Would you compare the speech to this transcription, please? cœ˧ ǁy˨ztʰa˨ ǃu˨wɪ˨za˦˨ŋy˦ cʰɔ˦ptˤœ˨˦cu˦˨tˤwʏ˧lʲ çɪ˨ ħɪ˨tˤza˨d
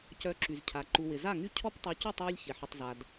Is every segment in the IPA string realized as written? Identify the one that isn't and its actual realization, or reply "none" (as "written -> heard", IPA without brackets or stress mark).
tʰ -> cʰ